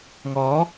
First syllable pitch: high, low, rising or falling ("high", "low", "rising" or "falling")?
rising